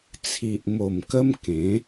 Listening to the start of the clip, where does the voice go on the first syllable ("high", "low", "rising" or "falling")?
low